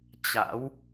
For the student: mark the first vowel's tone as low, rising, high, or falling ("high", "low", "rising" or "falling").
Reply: rising